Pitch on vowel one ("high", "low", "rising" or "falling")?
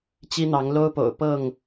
high